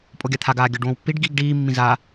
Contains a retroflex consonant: yes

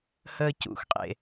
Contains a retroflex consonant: no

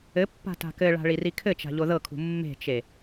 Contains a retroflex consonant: yes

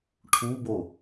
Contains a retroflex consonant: yes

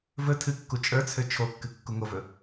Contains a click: no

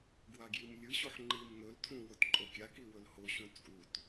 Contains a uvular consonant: no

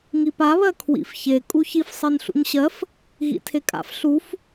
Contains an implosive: no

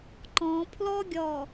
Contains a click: yes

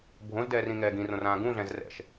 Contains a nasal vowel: yes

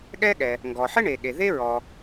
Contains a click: no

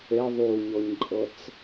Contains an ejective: yes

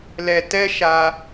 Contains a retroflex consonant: no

